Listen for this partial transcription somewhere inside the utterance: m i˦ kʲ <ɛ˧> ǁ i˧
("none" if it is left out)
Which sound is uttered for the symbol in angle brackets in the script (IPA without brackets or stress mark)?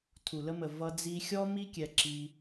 ɛ˧